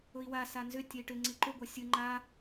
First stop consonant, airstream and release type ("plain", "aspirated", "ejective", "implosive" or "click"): plain